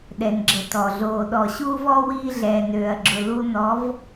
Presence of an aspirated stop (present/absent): absent